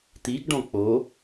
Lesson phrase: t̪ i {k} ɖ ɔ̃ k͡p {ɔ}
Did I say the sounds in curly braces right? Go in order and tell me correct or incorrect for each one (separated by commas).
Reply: incorrect, incorrect